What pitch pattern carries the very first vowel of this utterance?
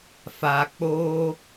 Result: low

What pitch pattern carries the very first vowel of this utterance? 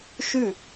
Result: falling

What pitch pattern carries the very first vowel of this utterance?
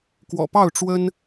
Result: low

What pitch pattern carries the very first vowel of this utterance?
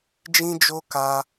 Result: high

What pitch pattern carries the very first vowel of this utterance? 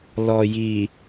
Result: low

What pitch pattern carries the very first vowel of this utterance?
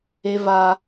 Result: high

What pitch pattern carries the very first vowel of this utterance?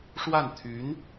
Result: falling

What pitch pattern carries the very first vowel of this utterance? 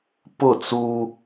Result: falling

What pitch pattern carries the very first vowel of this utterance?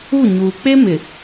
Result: falling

